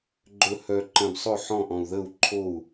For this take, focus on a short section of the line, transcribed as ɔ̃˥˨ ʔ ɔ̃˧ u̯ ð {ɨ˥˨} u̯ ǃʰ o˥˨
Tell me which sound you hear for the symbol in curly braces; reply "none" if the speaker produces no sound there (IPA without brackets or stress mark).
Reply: ə˥˨